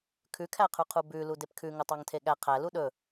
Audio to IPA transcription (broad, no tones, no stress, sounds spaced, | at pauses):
kʰ ʉ kʰ æ qʰ ʉ qʰ u b ʉ l u d e p kʰ ʉ ŋ ɵ tˤ ɑ ŋ tʰ e ɠ æ qʰ æ l u ɗ ɵ